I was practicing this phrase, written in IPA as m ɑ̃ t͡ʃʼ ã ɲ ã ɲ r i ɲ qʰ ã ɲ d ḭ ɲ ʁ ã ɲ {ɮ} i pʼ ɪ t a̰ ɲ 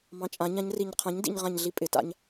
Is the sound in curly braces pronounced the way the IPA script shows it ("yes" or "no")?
yes